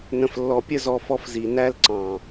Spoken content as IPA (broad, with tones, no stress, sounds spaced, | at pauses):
n ə̃˨ f lː ɔ˨ pʲ ə˦ z ɔ˧ f ɔ˧ f z i˨ n æ˦ l ǀ ɑ̃˨